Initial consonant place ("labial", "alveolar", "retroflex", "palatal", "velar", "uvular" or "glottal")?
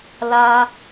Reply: alveolar